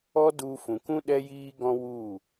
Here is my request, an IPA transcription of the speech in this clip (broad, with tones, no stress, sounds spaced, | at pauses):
ɔ˦ d u˧ f ũ˨ k ũ˦ ɗ ɛ˦ j iː˦ ɡ ɔ̃˦ w u˦˨